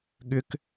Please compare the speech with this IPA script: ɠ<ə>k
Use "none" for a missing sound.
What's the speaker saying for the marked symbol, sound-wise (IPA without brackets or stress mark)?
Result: ʏ